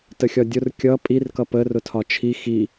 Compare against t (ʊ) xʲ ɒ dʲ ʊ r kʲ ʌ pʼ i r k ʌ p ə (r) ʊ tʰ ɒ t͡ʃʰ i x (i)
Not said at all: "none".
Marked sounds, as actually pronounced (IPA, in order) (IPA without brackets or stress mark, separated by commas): ə, r, i